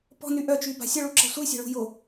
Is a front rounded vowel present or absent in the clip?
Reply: present